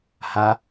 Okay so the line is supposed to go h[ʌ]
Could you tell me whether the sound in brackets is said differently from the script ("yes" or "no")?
yes